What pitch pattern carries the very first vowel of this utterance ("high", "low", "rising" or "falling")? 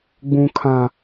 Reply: high